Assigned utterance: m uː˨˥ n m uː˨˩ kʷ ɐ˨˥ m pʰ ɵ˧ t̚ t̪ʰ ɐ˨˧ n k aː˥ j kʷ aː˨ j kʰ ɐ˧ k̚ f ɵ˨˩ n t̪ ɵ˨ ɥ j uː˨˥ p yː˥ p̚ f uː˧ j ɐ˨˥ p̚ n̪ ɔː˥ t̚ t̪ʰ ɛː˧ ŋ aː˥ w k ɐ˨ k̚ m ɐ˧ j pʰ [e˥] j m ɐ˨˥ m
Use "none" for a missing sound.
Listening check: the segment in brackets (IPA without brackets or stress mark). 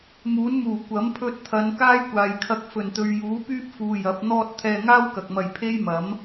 e˥